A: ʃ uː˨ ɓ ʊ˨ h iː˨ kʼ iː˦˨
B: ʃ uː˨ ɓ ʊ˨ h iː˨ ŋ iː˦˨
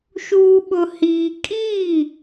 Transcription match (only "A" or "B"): A